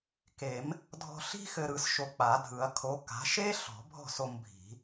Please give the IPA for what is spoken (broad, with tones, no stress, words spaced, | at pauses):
ke˨˩˦m | dʱɔ̤˧ɬi̤˥ xɘ˧ɾɯ˧s ʃo˧k͡pa˨˩˦dʱɯ˨˩˦ɐ̯ kʰo˨˥ka̤˨˥ ʃe˥ ɬɔ̤˨˩˦bʱɔ̤˥˨so˧m bʱi̤˨˩˦